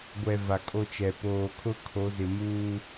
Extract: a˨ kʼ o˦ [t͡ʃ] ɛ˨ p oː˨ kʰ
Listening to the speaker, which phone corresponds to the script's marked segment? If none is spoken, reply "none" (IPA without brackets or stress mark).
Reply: t͡ʃ